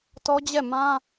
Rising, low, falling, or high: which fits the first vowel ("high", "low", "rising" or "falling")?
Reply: high